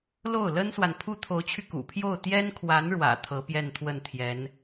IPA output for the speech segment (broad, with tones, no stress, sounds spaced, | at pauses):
l o˥˩ ʊ̯ l ə˥ n s w a˨ n pʰ u˥ t̪ʰ o˧˥ ʊ̯ t͡ɕʰ y˧ k ṵ˨˩ pʰ j o˥˩ ʊ̯ t̪ j ɛ˥ n kʰ w a˧˥ n ɻ w ä̰˨˩ t̪ʰ ɤ˧˥ p j ɛ˥˧ n t̪ʰ w ə˥˩ n t̪ʰ j ɛ˧˥ n